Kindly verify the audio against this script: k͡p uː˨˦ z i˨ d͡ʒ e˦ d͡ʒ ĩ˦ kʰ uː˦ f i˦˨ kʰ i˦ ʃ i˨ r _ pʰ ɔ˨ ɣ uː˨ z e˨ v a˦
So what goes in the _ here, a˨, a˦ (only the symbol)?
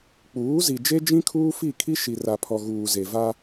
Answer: a˨